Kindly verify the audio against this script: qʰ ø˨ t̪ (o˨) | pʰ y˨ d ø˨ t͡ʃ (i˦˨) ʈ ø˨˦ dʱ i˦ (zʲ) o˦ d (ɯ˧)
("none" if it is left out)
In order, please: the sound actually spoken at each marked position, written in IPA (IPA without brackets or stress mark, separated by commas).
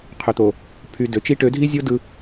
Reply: o˨, i˦, zʲ, ɯ˧